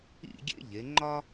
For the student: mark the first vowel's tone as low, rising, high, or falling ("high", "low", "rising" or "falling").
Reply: falling